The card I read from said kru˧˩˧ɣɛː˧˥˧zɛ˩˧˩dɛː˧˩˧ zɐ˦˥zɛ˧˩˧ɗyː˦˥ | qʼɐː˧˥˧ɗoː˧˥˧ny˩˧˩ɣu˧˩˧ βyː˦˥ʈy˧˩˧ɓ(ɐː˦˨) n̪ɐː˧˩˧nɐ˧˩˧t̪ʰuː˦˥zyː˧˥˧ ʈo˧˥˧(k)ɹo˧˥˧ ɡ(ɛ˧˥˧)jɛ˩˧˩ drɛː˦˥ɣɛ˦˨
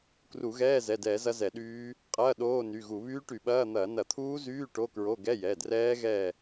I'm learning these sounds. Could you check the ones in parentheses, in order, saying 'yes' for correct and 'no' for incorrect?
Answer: no, yes, yes

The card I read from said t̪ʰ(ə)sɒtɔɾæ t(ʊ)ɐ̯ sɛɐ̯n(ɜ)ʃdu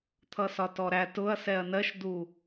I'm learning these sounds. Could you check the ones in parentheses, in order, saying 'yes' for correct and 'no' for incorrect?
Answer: no, yes, yes

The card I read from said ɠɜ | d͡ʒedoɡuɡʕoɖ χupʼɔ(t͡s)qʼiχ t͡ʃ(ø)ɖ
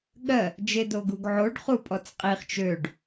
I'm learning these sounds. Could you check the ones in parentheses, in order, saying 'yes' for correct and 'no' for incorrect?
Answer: yes, yes

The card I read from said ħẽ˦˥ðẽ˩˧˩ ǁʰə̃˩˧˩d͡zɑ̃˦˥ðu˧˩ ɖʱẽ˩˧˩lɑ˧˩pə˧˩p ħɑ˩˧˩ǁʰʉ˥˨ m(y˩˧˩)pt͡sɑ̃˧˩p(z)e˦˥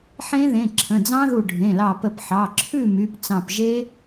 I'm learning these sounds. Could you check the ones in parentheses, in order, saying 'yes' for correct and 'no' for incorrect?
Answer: yes, no

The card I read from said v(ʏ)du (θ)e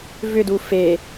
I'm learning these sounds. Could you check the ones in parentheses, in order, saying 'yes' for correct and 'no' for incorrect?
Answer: yes, no

